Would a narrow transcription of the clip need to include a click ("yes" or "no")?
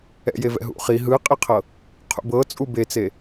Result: no